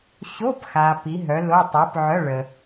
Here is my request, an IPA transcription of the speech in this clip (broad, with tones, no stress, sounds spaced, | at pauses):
ɕ o˧˥˧ p x a˨ p i˨˥ ɦ œ˨˥ l o˧˥˧ tˤ ø˨˥ p ʕ œ˧˥˧ ɭ ə˨